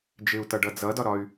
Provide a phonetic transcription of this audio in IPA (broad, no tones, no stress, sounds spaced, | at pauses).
d͡ʒ ɪ u̯ t ʌ ɖ ʌ d͡z ʌ d ɒ ɾ ɒ y̯